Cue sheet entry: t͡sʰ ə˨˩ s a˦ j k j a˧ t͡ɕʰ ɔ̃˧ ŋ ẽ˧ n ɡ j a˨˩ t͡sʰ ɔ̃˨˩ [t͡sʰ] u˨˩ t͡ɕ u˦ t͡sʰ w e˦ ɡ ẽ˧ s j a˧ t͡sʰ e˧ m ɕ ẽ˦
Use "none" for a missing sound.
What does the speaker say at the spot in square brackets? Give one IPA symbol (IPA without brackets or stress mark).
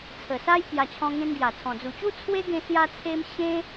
d͡z